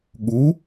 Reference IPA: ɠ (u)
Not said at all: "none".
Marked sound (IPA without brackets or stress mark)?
u